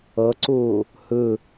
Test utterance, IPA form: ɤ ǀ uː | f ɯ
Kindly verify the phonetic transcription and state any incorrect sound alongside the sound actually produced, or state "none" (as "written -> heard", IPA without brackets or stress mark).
f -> h